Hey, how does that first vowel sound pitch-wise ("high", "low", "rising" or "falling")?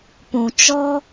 low